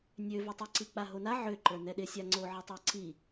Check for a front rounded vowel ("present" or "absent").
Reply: present